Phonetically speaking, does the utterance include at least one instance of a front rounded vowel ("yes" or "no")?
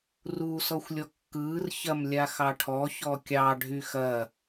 yes